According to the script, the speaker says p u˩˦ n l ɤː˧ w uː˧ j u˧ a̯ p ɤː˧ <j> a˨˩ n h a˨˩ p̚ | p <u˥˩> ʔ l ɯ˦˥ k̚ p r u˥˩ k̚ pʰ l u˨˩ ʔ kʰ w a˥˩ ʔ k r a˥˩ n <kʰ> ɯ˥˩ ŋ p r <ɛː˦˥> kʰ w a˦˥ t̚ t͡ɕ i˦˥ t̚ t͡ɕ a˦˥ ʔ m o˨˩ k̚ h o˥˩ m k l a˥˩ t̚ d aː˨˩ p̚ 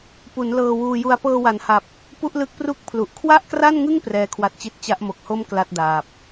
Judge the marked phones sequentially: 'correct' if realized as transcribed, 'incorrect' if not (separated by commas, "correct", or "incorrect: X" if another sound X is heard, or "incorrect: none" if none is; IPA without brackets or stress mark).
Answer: incorrect: w, correct, incorrect: ŋ, correct